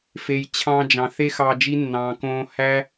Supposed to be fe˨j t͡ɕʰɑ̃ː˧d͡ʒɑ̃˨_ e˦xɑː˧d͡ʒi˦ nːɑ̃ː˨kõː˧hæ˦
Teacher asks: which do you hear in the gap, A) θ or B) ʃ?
A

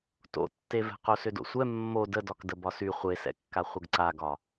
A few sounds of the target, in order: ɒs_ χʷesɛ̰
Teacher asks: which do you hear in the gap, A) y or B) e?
A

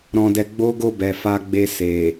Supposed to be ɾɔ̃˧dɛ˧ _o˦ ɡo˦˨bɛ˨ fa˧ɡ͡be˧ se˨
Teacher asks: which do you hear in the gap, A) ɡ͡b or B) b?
A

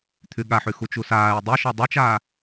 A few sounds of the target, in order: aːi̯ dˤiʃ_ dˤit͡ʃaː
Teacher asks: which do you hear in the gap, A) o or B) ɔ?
B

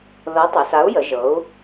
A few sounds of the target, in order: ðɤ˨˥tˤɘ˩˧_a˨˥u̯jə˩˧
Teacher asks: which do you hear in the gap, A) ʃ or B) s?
B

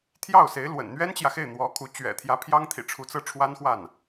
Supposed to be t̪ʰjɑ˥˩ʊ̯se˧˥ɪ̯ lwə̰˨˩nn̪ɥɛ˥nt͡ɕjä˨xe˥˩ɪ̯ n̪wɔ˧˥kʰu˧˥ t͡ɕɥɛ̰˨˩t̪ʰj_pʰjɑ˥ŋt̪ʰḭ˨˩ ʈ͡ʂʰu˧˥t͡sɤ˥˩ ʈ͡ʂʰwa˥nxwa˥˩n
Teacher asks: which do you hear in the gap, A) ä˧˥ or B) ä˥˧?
A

